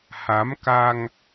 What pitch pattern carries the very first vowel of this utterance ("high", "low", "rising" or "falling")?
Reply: rising